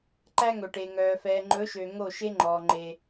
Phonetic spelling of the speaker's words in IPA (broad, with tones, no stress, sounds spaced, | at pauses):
ǃ æ˦ ŋ ɵ˨ ʈ e˨ ŋ œː˨ f ɛː˨ ŋ͡ǃ ɵ˨˦ ʃ ø˨ ŋ o˦˨ ʃ e˦ ŋ͡ǃ ɔː˨ ŋ͡ǃ e˦